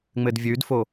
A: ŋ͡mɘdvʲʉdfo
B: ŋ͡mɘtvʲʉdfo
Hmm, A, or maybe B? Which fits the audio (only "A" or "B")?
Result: A